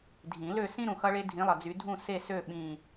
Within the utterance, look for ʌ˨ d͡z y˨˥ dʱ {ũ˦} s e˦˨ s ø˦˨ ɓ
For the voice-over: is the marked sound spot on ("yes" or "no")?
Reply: no